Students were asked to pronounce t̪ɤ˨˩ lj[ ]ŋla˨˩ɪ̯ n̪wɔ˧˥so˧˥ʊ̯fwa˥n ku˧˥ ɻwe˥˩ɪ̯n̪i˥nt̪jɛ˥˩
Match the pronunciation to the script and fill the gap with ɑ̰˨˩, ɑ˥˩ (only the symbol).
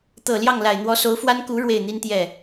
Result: ɑ˥˩